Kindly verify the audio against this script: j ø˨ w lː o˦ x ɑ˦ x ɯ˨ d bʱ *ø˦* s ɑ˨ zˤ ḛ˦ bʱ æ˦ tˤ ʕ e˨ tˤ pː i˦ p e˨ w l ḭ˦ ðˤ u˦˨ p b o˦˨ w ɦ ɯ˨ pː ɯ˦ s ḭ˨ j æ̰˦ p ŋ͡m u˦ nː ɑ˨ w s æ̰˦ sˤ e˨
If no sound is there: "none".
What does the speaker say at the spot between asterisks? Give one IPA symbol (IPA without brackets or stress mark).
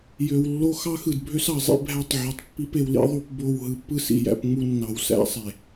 ø˦